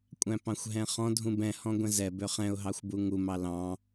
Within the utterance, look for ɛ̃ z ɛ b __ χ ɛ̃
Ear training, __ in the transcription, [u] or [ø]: ø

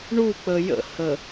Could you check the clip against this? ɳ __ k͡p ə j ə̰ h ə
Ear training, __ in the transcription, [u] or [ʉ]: u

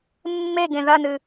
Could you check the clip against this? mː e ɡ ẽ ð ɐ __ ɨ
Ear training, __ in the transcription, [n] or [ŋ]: n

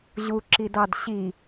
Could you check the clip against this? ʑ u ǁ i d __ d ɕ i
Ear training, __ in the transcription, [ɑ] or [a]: ɑ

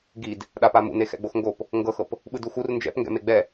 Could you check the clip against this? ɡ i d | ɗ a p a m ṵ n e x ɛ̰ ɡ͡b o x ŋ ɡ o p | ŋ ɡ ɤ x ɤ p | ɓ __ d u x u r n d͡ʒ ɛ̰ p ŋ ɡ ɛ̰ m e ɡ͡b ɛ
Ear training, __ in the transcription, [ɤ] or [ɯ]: ɯ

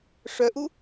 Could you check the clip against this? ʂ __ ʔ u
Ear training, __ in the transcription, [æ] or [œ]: œ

